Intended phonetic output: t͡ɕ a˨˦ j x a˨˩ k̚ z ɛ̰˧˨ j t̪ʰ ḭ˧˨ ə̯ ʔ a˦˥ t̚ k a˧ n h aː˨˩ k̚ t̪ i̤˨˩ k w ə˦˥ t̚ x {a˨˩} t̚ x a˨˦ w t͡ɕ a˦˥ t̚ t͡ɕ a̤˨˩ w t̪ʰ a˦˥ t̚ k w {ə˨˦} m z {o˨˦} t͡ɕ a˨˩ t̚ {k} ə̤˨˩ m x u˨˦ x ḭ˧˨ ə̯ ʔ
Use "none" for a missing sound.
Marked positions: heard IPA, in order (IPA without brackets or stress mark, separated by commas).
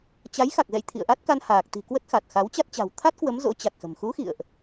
a˨˩, ə˨˦, o̰˧˥, x